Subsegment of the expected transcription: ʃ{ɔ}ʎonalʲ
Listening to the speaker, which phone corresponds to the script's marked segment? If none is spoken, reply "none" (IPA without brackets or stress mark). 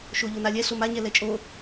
o